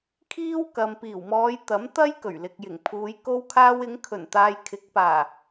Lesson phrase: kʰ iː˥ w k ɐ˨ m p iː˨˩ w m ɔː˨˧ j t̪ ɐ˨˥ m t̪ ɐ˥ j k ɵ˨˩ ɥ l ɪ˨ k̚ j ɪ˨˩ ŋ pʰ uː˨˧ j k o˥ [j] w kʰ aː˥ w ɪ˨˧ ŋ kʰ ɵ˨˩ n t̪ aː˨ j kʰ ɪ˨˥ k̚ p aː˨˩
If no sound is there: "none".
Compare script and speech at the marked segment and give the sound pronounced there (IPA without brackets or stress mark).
none